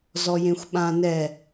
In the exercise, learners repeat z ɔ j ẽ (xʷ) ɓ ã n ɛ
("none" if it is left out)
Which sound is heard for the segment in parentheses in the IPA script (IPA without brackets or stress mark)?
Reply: xʷ